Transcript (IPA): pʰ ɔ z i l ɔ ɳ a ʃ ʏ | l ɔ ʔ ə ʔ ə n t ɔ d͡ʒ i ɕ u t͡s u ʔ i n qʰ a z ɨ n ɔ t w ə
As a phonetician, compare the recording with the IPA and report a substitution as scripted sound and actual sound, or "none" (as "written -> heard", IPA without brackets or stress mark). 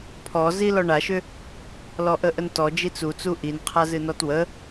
ɕ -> t͡s